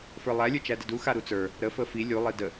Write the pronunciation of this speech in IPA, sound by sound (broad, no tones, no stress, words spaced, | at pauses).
fə˞lˠæ lʲə˞t͡ʃædədu xaɾut͡sə˞ | ɾə fəfi lʲu lˠidə